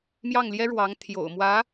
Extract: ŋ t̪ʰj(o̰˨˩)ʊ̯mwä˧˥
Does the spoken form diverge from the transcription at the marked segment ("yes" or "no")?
no